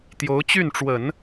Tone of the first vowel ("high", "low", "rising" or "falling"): rising